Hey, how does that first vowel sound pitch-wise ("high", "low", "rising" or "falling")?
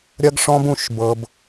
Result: high